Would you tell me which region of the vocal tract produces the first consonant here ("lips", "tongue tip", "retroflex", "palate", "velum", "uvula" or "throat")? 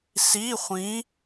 tongue tip